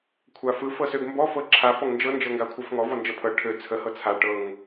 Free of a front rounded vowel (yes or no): no